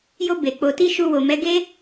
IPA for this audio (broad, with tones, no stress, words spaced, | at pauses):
jo˧ be˨ k͡po˨ti˧ ʃu˧wo˨mɛ˨˦ɡe˦